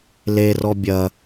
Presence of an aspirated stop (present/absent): absent